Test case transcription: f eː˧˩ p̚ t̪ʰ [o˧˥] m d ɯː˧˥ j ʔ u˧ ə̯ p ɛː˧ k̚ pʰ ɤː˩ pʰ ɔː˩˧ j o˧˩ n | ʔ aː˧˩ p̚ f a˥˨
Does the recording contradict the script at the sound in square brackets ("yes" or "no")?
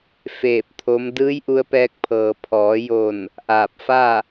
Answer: no